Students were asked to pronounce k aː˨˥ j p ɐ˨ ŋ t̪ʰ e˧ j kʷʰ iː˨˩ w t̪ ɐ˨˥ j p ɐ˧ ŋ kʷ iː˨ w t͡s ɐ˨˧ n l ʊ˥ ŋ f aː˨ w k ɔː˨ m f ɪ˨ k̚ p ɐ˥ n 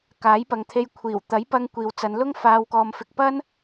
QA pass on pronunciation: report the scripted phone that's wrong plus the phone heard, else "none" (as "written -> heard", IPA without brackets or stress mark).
none